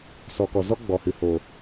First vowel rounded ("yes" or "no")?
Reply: yes